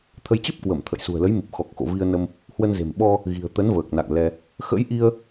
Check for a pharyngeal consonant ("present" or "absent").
absent